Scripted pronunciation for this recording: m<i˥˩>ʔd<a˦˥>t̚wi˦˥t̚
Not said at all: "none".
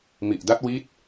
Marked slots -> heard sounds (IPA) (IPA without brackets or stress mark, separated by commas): i˨˩, a˦˥